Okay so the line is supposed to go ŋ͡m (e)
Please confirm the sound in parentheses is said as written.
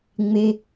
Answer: yes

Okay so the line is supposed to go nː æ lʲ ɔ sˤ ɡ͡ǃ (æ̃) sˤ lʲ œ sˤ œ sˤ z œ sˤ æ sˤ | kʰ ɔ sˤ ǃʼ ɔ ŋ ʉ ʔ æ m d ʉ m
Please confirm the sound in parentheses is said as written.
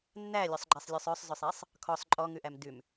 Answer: no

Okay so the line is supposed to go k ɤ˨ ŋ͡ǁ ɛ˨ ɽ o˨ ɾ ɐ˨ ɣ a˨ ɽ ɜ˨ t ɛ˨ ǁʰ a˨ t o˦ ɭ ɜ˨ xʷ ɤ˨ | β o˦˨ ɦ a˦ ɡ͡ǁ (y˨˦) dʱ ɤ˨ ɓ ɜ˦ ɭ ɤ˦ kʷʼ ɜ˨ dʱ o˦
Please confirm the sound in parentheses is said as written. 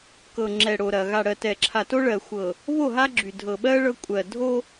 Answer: no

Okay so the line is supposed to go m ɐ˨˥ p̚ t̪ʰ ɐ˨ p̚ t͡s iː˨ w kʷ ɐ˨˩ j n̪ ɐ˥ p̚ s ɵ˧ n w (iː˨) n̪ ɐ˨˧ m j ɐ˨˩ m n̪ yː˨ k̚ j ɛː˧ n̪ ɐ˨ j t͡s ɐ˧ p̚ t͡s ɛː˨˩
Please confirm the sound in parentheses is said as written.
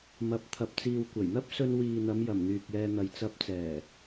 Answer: yes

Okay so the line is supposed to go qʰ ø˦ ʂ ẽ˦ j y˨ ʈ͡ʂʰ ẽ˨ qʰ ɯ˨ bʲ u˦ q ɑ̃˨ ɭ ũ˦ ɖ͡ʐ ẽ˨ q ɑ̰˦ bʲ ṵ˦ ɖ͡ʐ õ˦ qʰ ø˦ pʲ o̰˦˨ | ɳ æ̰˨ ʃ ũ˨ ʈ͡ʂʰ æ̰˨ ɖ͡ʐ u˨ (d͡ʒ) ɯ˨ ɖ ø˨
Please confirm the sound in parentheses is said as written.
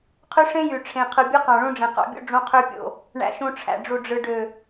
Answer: no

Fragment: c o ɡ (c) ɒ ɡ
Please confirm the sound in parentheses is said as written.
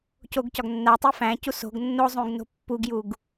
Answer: yes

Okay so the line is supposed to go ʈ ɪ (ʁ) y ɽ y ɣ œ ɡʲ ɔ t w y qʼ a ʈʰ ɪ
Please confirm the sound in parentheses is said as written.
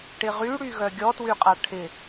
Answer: yes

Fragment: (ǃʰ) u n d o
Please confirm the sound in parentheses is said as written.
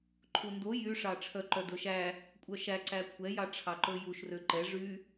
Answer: yes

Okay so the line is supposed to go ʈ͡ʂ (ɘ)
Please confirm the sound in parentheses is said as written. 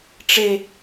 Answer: no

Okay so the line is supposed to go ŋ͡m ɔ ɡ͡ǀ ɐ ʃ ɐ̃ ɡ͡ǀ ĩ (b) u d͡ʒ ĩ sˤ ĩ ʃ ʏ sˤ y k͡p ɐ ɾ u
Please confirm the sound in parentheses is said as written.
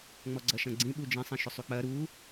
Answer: no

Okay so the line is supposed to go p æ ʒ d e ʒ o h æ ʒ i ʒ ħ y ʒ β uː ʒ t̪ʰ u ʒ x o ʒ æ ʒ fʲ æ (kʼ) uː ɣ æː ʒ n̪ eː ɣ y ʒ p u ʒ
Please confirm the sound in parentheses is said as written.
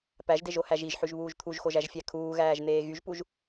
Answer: no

